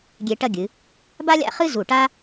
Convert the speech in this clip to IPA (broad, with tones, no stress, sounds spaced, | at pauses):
ɡʲ e˧ ʈ ɐ˥˧ ɡʲ ɨ˩˧ | b a˥ lʲ a̰˥˧ χ ɨ˥ z u˧˩ ʈ a˥